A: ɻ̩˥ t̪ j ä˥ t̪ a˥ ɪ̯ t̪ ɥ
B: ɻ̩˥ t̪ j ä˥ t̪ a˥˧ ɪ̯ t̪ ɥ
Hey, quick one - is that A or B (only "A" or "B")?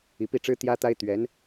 A